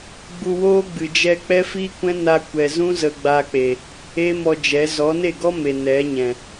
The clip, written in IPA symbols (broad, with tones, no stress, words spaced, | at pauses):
ɡ͡bu˧woː˦ ɡ͡bɨ˨d͡ʒɛ˧ k͡pɛ˦fi˦kʷɛ̃˦ na˧kʷɛ˨zũ˦ zə˧ɡ͡ba˧k͡pe˨ | eː˦mɔ˧ d͡ʒɛ˨˦ zɔ˨˦ne˦˨ɡɔ˦ me˨nɛ˨˦ɲɛ̃˨